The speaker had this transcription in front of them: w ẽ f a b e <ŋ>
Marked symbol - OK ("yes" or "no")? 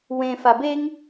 yes